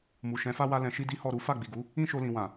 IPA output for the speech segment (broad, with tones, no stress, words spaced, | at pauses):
mu˨ʃɛ̃˨˦fa˦ wa˦lɛ̃˧ ʃi˦di˦hɔ˦˨ ɾu˨˦ fa˦˨ɡ͡bi˨ɡu˨˦ | ĩ˦ʃo˧lĩ˨wã˨